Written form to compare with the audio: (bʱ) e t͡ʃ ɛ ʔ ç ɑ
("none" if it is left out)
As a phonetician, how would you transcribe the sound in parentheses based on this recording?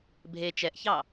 bʱ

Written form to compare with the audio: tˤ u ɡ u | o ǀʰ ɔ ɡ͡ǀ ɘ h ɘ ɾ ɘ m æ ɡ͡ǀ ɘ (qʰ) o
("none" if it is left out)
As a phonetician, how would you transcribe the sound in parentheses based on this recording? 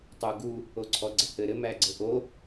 ʔ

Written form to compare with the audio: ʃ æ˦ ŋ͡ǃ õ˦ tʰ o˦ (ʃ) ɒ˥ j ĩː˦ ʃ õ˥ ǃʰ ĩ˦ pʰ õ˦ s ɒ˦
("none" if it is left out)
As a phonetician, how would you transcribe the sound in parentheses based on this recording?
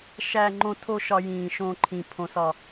ʃ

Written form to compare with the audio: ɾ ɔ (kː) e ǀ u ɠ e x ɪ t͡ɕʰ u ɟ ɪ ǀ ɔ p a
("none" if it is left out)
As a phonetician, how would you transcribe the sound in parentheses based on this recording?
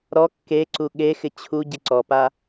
kː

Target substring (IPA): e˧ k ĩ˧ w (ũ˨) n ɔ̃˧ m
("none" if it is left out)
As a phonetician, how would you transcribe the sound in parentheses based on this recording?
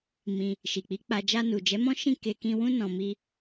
ũ˦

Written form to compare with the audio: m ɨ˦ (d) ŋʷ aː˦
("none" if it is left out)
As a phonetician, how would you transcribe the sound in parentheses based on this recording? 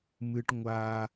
ʈ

